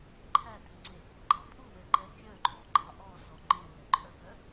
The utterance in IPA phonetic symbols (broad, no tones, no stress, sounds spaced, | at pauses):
ǃʰ æ tʼ ẽ ŋ͡ǀ e | ɡ͡ǃ ɑ pʼ u w ɛ ǃ ɛ kʲ œ ǃʰ ɔ ɡ͡ǃ ɑ ʔ ɔ s ɔ ŋ͡ǃ ẽ w ɛ ǃʼ œ p œ